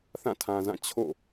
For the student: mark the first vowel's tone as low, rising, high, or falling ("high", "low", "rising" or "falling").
falling